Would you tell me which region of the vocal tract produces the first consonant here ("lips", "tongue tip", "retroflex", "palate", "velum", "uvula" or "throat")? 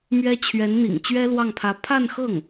lips